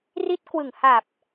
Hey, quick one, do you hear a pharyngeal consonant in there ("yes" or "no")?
no